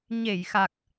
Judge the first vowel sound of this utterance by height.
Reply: mid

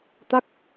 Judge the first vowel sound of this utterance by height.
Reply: low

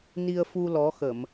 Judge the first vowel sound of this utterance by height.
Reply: high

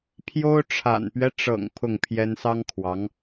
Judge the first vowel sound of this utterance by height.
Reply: mid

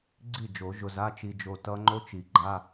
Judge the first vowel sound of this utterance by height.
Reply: high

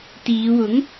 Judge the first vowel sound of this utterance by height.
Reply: high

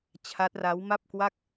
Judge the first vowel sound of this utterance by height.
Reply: low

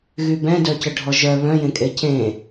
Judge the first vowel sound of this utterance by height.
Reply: high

